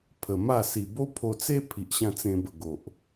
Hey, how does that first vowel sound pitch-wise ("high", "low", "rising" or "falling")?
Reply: low